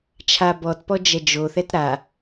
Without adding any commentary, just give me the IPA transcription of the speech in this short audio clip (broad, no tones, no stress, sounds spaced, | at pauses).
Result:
t͡ʃʰ a b ɔ t p ɔ d͡ʒ ɛ d͡ʒ o θ ɛ t ɾ a